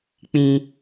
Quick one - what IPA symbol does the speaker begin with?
k͡p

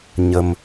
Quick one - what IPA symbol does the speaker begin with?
ɲ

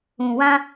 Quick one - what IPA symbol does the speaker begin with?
ũ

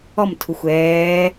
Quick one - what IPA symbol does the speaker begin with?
ɔ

